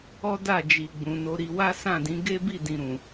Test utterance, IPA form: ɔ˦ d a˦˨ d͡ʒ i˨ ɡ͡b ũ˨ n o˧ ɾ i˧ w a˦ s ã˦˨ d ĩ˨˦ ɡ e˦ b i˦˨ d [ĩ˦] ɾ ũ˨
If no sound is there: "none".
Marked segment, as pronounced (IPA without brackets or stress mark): ĩ˨